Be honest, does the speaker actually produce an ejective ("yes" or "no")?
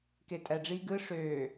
yes